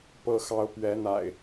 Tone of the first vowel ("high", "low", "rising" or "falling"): high